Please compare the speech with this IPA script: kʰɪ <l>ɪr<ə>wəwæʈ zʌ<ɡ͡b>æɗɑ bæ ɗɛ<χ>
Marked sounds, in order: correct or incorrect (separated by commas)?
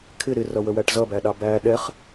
incorrect, incorrect, incorrect, correct